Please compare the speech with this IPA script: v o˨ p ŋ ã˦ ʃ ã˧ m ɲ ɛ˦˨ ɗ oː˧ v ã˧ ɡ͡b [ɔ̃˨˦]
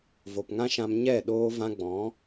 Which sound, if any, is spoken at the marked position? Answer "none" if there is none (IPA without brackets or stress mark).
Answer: ɔ̃˨˦